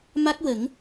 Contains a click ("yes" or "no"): no